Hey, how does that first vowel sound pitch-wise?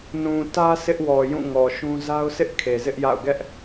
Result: low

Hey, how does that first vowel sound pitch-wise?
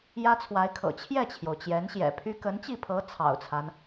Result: high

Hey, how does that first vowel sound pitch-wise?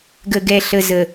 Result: low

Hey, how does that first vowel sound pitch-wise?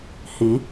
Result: rising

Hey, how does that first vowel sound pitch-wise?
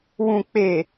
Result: low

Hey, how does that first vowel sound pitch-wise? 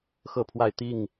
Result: falling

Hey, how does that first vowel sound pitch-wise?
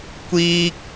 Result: high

